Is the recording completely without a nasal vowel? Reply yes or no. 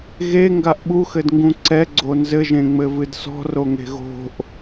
no